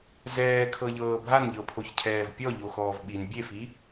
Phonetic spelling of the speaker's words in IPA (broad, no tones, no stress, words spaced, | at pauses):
zɛːkʰɤʎɤː bʱanʎɤpʰoçcʰɛːv pʲɔʎoxɔːv ɓin bʲefi